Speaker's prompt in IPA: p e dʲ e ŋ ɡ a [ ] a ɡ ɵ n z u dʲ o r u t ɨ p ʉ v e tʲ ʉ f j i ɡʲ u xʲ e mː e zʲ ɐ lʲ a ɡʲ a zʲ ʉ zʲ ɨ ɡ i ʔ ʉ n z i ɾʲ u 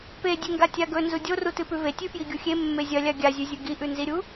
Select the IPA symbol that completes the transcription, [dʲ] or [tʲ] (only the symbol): tʲ